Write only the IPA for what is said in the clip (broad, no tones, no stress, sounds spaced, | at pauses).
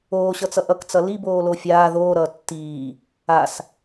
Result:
oː ɕ ʌ t͡s ʌ ʔ ʌ k t͡s ʌ l i b oː l o fʲ aː ð oː ɾ ʌː tː iː | a s